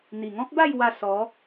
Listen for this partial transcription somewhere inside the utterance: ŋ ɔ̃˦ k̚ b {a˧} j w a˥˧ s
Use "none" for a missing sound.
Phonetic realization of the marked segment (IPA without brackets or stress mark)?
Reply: a˥˧